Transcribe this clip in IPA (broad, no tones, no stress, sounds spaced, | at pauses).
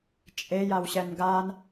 t͡ʃʼ e j a w ɕ ɛ n ɡ a n